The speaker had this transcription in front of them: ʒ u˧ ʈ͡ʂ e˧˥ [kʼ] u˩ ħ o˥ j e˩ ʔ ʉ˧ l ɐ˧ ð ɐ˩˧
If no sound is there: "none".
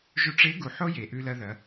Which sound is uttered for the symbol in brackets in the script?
ɡ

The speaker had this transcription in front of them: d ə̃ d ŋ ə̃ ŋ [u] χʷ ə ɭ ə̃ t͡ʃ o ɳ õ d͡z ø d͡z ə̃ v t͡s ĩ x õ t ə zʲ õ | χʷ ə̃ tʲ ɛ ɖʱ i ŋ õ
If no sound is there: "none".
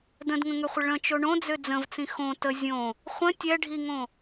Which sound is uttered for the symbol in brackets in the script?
ø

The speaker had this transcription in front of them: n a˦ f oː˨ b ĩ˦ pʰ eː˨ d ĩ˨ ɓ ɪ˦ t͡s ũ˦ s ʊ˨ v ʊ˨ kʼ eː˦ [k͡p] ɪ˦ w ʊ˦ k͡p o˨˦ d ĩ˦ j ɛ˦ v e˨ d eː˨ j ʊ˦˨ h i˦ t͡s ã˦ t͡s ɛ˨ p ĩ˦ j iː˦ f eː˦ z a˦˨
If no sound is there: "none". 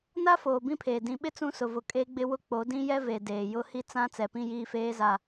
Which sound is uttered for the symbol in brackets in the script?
ɡ͡b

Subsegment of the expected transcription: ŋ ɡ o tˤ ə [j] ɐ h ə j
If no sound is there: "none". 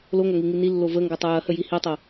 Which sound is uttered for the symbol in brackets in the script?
j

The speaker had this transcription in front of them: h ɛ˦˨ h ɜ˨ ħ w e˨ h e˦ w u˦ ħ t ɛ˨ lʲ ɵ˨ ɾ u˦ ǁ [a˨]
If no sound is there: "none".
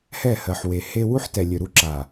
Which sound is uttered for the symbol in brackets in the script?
a˨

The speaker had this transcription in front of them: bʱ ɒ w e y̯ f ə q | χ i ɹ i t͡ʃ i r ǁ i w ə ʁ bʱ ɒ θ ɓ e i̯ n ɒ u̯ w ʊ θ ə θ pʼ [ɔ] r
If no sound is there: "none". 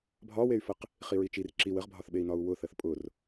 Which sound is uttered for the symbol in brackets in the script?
ʊ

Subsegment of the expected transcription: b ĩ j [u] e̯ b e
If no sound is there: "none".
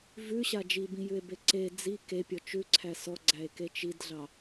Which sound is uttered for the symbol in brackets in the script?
ʉ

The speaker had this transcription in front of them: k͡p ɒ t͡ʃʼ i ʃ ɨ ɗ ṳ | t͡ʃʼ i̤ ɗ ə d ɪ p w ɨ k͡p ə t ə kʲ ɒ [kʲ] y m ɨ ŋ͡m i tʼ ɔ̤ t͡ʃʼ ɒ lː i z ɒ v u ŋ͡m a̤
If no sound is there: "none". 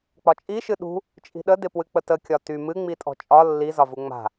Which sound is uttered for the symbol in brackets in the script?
t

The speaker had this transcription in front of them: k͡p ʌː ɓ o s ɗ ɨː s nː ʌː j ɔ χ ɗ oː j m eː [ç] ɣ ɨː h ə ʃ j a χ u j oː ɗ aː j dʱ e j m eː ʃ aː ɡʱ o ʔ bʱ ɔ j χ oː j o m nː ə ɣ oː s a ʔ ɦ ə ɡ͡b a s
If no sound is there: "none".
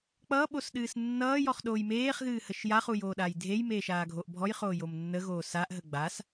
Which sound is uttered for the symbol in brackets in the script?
χ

